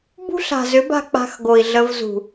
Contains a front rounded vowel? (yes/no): yes